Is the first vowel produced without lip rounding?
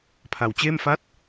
yes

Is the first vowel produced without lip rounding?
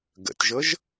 yes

